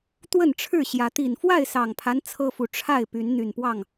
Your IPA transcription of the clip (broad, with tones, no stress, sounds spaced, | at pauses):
t̪ w ə˥˨ n ʈ͡ʂʰ ɻ̩˥˨ ɕ j ä˨˦ t̪ i˨˩ n f w a˥˨ ɪ̯ s ɑ˨˩ ŋ pʰ a˦ n t͡sʰ ɤ˦ f u˨ ʈ͡ʂʰ a˥˨ ɪ̯ p y˨˦ n n̪ y˨˩ n p w ɑ˥˨ ŋ